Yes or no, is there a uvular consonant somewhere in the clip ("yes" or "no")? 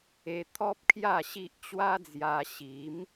no